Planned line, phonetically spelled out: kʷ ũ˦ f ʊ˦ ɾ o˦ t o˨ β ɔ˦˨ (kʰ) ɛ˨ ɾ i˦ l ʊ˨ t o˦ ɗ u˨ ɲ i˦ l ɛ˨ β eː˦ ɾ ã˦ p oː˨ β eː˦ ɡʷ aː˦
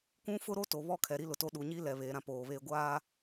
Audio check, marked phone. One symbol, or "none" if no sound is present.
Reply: kʰ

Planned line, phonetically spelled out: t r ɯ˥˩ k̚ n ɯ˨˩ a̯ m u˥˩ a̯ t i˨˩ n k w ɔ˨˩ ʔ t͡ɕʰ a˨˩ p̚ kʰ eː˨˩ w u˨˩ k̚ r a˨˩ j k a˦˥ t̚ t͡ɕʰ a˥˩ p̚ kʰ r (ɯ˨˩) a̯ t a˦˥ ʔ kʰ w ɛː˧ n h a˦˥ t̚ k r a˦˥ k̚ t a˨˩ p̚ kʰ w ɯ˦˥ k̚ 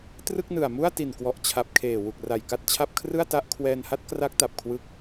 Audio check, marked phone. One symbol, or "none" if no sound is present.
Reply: ɯ˥˩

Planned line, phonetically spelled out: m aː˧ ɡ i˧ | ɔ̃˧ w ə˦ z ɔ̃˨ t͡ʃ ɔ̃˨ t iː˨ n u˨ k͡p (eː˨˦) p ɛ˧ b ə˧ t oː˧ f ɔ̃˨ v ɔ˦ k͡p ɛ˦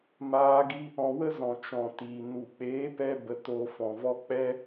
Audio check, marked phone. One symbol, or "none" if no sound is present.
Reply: eː˨˦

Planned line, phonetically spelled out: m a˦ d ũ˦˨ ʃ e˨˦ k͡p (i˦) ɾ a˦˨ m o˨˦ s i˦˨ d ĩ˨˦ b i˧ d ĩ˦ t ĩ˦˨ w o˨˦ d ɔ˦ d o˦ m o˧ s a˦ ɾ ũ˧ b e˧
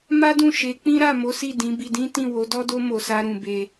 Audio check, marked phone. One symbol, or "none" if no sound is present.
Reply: ĩ˦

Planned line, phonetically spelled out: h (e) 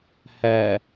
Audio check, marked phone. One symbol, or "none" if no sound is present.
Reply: ɛ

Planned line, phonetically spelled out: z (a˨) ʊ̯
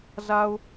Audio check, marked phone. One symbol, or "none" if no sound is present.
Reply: a˨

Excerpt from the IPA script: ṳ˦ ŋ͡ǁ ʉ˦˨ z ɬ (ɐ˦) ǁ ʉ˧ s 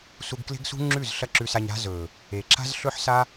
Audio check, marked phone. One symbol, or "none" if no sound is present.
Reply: ɐ˦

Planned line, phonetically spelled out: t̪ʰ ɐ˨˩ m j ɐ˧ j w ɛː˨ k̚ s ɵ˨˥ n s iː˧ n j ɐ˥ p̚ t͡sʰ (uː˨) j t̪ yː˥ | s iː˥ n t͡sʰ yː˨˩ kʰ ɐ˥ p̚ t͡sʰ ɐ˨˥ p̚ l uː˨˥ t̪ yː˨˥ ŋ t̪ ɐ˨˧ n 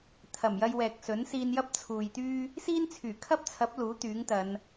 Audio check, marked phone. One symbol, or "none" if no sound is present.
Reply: uː˨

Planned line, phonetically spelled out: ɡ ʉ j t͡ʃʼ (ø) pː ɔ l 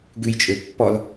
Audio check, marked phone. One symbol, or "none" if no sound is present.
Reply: ø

